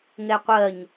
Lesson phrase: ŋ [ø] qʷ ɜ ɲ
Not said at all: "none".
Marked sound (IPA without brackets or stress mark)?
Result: ɛ